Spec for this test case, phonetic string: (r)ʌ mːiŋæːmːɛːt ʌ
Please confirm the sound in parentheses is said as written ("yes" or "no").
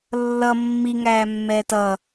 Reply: no